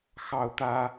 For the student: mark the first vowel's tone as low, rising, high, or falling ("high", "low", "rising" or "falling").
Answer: high